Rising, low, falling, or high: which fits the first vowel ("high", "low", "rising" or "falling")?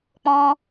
high